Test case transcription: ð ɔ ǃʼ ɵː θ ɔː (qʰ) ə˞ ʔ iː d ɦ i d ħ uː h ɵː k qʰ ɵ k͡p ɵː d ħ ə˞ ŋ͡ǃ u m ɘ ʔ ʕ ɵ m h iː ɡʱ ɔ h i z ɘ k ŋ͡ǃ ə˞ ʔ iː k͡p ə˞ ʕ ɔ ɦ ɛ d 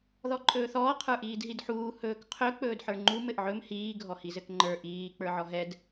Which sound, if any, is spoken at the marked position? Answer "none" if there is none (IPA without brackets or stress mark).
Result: qʰ